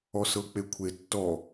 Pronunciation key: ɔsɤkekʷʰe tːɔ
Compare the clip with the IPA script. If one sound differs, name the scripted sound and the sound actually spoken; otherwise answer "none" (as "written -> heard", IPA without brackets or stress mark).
k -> k͡p